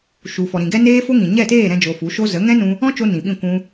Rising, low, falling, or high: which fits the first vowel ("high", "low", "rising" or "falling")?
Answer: low